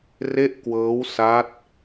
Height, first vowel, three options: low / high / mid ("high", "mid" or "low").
mid